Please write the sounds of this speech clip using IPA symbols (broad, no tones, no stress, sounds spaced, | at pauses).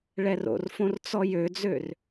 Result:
ɭ ɛ r o̰ r f õ r t͡s ɔ j ø d͡z ø r